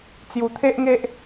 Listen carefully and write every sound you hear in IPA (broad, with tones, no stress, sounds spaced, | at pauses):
t͡s j u˨˩ t̪ʰ e˦ ʔ ŋ e˦ ʔ